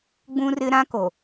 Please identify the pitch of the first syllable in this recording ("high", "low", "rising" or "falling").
high